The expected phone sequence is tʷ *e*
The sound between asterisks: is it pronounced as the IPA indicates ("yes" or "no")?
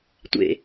no